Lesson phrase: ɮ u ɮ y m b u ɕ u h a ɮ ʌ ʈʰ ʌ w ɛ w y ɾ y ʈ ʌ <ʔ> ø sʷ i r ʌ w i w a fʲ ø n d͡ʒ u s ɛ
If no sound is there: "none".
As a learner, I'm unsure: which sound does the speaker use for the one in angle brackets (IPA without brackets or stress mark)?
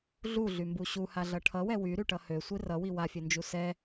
h